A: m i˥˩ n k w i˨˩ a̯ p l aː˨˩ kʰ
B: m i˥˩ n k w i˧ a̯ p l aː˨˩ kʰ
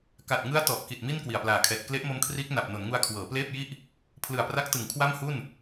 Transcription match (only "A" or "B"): A